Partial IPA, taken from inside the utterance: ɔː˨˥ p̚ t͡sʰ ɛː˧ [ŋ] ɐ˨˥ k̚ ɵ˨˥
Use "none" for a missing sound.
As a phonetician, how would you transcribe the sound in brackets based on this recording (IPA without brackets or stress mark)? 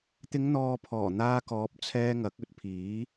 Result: ŋ